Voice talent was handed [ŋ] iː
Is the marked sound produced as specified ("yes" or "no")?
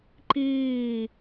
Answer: no